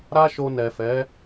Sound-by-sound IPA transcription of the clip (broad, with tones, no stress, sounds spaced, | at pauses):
ɾ a˦ ʃ o˧ n ɛ˨ f ɛ˨˦